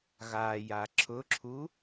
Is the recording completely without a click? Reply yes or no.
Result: no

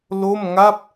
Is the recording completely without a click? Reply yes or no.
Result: yes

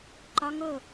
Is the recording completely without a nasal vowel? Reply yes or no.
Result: yes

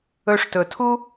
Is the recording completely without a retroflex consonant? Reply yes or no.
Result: no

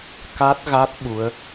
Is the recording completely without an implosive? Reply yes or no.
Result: no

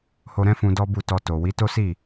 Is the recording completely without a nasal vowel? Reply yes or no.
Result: no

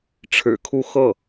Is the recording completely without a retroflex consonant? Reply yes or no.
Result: no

